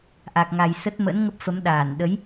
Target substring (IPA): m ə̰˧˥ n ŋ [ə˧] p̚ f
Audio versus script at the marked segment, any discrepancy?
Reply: yes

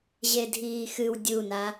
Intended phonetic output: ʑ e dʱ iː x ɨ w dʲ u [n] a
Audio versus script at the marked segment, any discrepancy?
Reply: no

